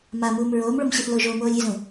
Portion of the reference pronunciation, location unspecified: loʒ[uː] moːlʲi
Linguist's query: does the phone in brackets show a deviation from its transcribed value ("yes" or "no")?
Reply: yes